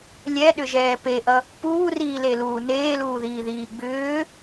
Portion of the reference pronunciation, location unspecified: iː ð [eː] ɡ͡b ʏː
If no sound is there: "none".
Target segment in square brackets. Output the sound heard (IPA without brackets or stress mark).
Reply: iː